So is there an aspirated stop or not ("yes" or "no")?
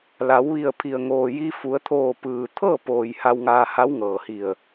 yes